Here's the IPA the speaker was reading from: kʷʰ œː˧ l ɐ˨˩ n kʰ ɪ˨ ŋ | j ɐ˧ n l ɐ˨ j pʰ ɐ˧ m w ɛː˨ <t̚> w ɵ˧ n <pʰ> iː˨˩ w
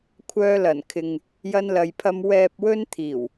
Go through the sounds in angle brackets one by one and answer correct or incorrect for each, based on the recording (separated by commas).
incorrect, incorrect